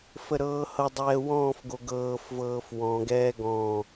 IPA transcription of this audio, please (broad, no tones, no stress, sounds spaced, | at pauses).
f ə ɾ ɤː h ɤ dˤ ɛː w ɔ̃ː f ɡ o ɡ ɤː f v ɤː f w ɔ̃ ɡ ɛː ɡ ɔ̃